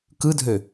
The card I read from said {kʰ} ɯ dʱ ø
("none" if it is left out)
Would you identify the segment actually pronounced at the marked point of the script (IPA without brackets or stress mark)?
k